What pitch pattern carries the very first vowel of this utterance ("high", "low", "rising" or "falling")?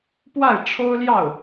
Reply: falling